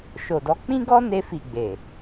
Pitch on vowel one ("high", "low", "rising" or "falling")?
low